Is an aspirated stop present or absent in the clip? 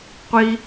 absent